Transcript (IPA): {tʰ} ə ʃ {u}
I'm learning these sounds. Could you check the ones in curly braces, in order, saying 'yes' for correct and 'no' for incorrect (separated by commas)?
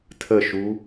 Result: yes, yes